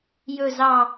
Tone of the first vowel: falling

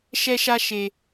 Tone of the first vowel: high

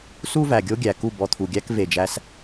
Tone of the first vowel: high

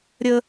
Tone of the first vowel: high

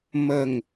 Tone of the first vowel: falling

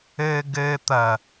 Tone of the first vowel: low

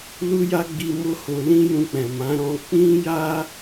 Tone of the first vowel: high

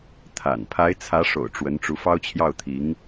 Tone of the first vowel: low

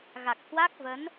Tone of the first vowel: low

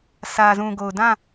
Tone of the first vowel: low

